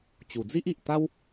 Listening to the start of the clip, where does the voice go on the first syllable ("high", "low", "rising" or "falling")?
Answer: low